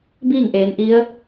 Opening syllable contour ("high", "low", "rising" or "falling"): falling